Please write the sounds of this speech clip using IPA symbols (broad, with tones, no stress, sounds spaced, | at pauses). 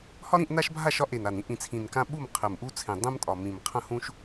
h ɒ˦ ɾ ĩ˥˨ ʔ n a˦ ʃ bʱ a˥˨ ʃ ɒ˦ ʔ e˨˩ n a˨˩ n ĩ˦ ʔ ĩ˨˩ t͡sʰ ĩ˨˩ n k ã˦ ɓ u˥˨ m qʰ ɘ˨˩ m ʔ u˦ t͡sʰ ẽ˨˩ dˤ ɛ̃˦ m tʼ ɒ˨˩ m ĩ˨˩ m qʰ ɐ̃˥˨ h ũ˦ ʃ